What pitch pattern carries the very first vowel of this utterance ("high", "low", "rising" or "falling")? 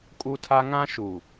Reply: high